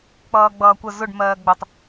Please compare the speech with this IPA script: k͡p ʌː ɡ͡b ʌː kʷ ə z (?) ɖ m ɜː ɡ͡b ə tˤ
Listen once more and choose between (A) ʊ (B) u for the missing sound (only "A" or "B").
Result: A